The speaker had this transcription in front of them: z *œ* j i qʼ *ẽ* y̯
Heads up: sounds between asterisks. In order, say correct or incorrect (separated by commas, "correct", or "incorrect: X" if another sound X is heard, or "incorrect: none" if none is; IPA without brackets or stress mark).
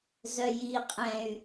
correct, incorrect: ɛ̃